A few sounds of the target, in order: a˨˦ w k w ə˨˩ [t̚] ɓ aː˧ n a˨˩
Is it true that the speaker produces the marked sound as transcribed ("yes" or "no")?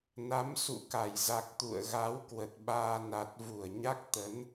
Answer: yes